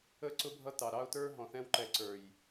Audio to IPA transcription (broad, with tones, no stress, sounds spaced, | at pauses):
ə˦ ǀ ʊ˦ bʱ ʌ˦ t ɑ˨ ɾ ɑ˦ ʊ̯ t ə˞˦ ɦ ɔ̃˨ θ ɛ̃˦ w ǃ ɛ˨ ǀ ə˞˨ j